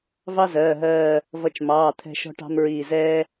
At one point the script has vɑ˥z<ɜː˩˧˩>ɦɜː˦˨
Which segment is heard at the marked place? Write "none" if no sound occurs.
ɜː˩˧˩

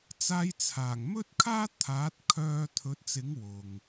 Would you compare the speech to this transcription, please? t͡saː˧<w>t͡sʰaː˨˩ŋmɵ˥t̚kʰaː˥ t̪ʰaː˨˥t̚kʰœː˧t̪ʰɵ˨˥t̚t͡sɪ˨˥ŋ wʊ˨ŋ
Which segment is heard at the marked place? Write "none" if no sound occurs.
j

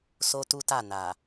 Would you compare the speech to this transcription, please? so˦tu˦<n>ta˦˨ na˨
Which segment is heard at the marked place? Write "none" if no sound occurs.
none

